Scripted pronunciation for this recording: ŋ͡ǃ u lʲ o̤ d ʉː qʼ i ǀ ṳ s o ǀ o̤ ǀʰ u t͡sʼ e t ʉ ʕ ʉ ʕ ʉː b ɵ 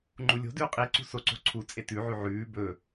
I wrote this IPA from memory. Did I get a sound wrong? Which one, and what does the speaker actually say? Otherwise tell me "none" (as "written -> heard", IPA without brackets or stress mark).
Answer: none